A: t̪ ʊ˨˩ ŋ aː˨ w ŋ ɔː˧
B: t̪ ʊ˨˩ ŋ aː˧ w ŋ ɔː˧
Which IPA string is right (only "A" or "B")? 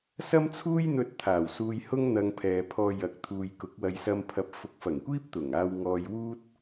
B